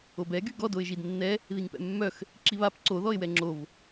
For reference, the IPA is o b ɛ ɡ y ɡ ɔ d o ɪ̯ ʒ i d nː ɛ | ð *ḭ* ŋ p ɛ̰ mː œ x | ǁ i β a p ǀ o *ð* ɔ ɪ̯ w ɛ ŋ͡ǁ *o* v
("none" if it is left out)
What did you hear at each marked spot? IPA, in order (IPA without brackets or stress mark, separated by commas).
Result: i, ð, o